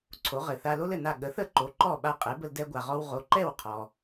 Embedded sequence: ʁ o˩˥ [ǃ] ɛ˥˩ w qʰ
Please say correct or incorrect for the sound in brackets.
correct